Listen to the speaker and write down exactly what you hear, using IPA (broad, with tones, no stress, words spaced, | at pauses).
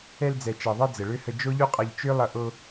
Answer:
ɛ˧ld͡zɛ˨t͡ʃɛ˨ðˤɛ˧ d͡zə˨ɭø˦hə˧ d͡ʒo˦ʎu˦qʼʌ˧ʎ t͡ʃø˦lˠʌ˧ ʔo˧